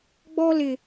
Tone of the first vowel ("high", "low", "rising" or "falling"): high